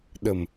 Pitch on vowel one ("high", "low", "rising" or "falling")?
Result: low